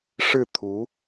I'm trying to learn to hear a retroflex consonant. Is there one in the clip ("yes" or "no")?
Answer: yes